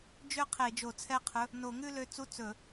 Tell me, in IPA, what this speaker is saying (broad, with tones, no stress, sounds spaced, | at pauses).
d͡ʒ ø˥˧ qʰ e˧˩˧ d͡ʒ o˧˩˧ t͡sʰ ɛ˥˧ qʰ ɵ˧˥˧ | n o˧˩˧ ŋ ʉ˥˧ l ø˨˥ t͡s u˧˥˧ t͡s ɵ˧˩˧